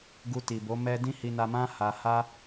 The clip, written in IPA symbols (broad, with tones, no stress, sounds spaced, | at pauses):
ɡ u˧ t i˨ b o˨˦ m ɛ˧ d ĩ˦ h i˧ n a˧ m ã˦ h a˧ h a˦